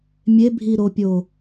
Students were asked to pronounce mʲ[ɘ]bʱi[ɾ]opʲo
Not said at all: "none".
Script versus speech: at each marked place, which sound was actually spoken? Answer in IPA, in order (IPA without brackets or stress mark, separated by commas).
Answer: e, ɾ